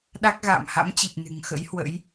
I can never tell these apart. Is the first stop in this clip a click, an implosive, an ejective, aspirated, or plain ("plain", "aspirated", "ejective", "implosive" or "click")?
implosive